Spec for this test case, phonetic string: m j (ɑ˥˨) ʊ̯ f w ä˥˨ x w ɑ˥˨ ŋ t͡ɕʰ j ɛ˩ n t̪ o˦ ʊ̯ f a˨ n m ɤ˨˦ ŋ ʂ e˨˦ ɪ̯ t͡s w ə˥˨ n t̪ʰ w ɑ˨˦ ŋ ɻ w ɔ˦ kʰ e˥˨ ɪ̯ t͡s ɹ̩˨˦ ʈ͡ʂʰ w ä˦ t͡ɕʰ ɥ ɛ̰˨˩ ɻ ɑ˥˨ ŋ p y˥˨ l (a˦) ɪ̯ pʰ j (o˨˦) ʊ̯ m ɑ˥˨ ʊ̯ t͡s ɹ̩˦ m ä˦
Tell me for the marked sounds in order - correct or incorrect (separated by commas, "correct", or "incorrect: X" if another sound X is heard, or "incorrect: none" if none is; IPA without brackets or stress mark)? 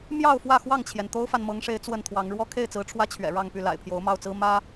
correct, incorrect: a̰˨˩, correct